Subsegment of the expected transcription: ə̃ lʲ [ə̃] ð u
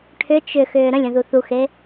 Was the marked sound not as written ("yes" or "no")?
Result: no